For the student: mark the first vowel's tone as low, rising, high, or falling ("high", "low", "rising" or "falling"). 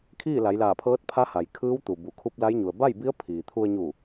falling